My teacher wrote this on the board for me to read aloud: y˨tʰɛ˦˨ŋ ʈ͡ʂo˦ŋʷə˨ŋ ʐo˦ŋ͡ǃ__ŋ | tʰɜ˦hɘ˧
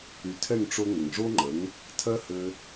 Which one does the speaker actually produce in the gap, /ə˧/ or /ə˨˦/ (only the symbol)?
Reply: ə˨˦